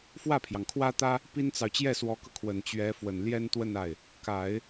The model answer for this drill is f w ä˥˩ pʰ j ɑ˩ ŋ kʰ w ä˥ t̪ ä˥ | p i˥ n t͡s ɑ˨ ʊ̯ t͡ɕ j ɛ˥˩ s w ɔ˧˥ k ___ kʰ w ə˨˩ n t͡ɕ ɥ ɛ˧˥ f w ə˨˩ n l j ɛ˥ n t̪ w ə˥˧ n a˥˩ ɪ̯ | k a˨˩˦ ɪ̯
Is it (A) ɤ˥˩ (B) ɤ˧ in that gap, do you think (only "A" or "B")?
B